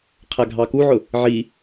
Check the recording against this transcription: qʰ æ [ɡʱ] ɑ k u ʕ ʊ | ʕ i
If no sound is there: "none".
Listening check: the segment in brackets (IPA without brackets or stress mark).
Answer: ɡʱ